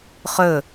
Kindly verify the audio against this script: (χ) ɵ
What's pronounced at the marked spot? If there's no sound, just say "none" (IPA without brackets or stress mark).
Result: χ